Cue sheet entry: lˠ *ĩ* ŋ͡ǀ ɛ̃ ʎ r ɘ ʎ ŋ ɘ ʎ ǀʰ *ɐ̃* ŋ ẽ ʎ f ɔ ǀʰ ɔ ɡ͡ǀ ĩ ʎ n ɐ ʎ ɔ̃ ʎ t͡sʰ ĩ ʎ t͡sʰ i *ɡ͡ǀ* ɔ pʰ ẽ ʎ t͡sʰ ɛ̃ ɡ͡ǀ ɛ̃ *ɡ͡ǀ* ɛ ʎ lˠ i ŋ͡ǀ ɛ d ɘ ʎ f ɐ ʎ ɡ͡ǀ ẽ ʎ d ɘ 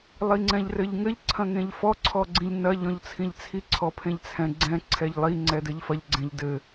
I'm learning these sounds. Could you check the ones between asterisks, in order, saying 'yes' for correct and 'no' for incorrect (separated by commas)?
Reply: no, yes, no, no